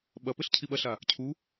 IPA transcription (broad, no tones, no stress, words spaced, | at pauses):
ɓɐpɘɬ cʰiɓɐɬa | cʰu